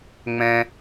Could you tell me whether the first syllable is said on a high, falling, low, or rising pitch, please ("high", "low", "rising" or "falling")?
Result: high